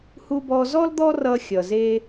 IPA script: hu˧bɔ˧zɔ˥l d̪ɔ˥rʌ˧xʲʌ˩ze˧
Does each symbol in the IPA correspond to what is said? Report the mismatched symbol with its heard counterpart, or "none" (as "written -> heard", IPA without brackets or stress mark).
none